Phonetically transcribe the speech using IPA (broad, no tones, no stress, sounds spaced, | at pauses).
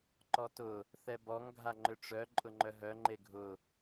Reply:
ǃ ɔ t ʊ | θ ɛ b ɔ ŋ ɡʱ a ŋ͡ǃ ʏ ʈ͡ʂ œ ǃʼ ʊ ŋ͡ǃ œ ɦ œ ŋ͡ǃ e ɡʱ ʊ